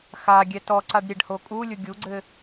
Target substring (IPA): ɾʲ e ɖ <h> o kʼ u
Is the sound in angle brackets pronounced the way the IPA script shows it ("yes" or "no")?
yes